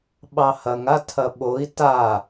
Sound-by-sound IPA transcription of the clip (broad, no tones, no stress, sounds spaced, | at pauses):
ɓ ɑ h ɐ ŋ a tʰ ɐ ɓ o i̯ t a